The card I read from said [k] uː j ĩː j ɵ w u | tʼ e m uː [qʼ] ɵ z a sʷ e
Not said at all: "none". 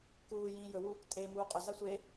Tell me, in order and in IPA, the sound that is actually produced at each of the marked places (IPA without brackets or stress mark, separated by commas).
k, qʼ